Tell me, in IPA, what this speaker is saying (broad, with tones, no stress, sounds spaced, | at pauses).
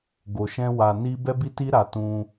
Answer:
ɡ o˧ ʃ ɛ̃˦ w a˧ n i˦ b ɛ˦ b i˦ t i˦ ɾ a˧ t ũ˧